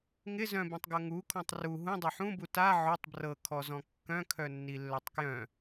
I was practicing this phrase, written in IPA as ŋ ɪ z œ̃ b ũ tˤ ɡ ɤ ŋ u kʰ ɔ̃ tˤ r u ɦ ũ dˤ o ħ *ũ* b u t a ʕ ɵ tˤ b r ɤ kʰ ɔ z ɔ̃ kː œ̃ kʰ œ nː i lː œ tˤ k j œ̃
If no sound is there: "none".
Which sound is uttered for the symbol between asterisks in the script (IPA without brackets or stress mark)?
ũ